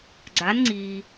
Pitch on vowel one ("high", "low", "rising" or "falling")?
rising